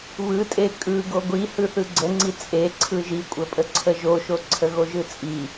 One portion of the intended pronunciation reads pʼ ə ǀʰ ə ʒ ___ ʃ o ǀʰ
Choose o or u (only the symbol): o